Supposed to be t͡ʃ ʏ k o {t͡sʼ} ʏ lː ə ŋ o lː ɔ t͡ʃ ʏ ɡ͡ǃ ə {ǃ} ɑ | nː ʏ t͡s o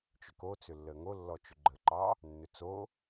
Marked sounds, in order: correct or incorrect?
incorrect, correct

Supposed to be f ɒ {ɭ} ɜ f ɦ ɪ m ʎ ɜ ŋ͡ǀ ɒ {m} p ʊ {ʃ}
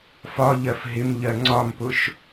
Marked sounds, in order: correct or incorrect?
incorrect, correct, correct

